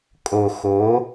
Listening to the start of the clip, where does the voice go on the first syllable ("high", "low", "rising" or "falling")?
low